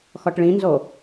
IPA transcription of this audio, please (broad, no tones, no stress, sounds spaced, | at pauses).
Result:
x ɔ ʈ ɭ ĩ n z o